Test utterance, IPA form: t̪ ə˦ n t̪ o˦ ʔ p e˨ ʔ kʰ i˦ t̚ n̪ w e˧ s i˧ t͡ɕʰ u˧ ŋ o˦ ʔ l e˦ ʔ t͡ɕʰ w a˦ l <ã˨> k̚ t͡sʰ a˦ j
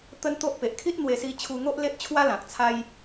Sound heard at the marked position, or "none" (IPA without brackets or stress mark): ã˨